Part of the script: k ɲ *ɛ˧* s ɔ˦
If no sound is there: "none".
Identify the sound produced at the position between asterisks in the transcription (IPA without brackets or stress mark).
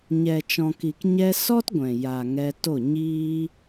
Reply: ɛ˧